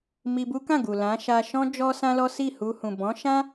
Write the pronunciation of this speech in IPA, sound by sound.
m i˧ b u˦ k ã˦˨ ɡ u˨ l ã˨˦ ʃ a˧ ʃ ɔ̃˦ d͡ʒ ɔ˦ s ã˦ l ɔ˦ s i˦˨ h u˧ h ũ˨ b ɔ̃˨˦ ʃ ã˦

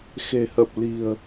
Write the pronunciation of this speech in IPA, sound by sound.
x e̤˨˩ h ə˨˩ p̚ l i̤˨˩ ə̯

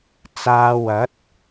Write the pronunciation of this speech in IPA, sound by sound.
t͡s aː˧ w ɐ˨˥ t̚

